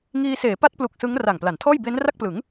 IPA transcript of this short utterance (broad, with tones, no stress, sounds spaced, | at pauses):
ŋ iː˧ s eː˩˦ p a˦˥ t̚ p l u˨˩ k̚ s ɯ˦˥ ŋ r a˨˩ ŋ p l a˩˦ n tʰ ɔː˥˩ j b e˦˥ n r a˥˩ k̚ p l ɯ˩˦ ŋ